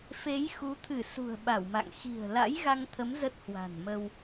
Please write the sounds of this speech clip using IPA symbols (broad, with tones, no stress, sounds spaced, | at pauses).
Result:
f e˨˦ j x u˨˦ t̪ʰ ɨ˧˩ s ṳ˨˩ ə̯ ɓ a˧˩ w m a̰˧˨ ŋ x i̤˨˩ ə̯ l a̰˧˥ j ɣ a˧ ŋ t̪ʰ ə˨˦ m z ə˦˥ t̚ h w a̤˨˩ n m ə˧ w